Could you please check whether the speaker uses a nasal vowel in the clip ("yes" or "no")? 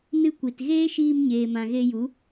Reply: yes